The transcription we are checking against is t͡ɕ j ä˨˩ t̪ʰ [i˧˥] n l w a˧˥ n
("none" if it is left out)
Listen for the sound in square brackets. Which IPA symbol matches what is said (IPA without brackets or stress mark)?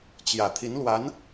i˧˥